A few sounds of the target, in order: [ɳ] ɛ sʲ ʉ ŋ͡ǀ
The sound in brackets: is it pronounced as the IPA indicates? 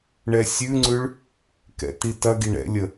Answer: yes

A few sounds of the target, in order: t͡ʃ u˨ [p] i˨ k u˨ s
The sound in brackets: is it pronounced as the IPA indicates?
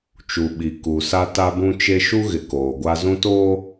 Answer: no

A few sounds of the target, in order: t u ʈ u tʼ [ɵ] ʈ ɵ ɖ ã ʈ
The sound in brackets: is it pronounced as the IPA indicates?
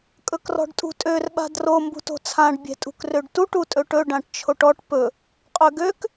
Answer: yes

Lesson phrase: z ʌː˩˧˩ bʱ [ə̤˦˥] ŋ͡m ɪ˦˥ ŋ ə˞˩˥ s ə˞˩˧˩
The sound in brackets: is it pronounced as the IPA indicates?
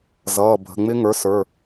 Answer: no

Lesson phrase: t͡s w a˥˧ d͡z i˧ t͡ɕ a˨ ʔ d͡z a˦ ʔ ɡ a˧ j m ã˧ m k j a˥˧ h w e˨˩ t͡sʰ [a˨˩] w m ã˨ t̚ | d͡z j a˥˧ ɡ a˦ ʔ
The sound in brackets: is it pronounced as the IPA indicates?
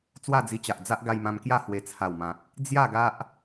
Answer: yes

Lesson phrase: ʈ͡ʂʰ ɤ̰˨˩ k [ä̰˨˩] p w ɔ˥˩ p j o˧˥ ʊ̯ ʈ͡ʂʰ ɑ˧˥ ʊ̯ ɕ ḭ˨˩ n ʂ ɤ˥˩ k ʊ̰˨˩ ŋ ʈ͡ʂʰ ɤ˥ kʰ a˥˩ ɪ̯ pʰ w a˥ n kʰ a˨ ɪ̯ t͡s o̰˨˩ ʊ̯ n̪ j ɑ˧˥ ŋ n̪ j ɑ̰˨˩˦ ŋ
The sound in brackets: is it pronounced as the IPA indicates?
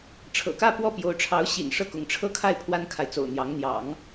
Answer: no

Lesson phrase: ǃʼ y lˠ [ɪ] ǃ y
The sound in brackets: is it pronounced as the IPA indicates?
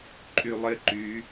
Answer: yes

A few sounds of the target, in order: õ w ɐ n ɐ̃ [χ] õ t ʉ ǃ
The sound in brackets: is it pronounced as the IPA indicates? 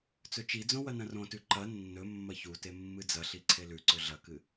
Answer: no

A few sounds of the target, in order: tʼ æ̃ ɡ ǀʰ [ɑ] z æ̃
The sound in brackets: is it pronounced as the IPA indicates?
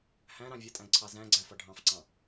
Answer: yes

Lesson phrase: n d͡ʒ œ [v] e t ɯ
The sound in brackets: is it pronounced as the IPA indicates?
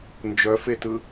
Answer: no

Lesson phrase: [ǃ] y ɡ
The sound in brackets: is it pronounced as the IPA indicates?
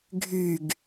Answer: no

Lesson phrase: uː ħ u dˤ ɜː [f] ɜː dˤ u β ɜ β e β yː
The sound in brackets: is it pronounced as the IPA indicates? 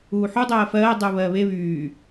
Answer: yes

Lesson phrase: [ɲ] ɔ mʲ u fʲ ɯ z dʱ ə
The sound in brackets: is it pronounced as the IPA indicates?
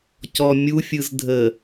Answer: no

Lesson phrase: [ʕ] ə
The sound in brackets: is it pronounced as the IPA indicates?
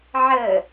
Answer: yes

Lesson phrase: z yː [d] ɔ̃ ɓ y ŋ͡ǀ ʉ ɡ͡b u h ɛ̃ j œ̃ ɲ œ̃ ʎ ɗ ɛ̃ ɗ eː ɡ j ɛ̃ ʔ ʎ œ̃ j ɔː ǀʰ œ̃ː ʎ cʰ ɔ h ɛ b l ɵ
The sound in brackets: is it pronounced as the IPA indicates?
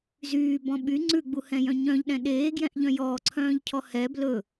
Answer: no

